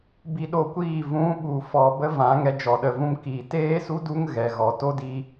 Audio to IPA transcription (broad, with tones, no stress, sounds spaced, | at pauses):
b i˧ ɗ o˧ kʷ iː˦˨ v ũ˨˦ ɓ u˨ f ɔ˨ b ə˦ v ã˨˦ ŋ ɛ˧ d͡ʒ ɔ˨ ɗ ə˨ v ũ˧ m k iː˨ t eː˦ s u˦ d u˦ ŋ ɣ ɛ˨ ɣ ɔ˨ t o˦ d i˧